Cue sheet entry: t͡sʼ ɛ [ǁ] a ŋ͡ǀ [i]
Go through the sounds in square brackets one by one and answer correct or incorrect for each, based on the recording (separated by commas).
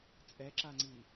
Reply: correct, correct